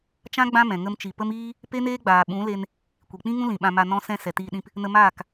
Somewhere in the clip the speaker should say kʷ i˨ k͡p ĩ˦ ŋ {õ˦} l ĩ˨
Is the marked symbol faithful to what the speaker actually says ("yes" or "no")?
no